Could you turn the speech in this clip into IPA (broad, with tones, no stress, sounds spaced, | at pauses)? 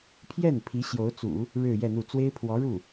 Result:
pʰ j ɛ˥˩ n pʰ i˧˥ ɕ j o˧˥ ʊ̯ t͡s ṵ˨˩˦ | ɻ ɻ̩˥˧ j ɛ˥˧ n̪ u˥˩ t͡s w e˥ ɪ̯ pʰ w ɔ˧˥ ɻ u˥˩